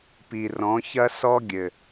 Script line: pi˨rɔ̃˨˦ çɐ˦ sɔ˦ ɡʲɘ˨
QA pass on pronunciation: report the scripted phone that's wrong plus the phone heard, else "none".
none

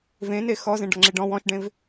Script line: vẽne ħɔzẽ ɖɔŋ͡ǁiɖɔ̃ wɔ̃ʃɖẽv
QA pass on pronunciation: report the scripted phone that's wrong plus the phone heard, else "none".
ħ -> x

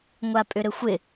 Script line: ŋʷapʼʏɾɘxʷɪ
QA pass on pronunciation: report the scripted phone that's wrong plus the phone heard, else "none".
none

